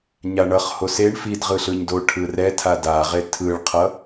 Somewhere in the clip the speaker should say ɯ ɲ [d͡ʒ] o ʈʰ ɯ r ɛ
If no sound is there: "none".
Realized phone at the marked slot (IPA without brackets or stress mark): d